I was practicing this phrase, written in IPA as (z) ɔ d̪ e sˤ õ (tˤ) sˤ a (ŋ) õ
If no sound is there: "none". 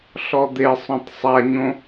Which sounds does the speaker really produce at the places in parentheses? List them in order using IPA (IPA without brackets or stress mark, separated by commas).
ɬ, tˤ, ɲ